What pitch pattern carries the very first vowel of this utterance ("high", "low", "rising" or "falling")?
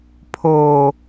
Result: low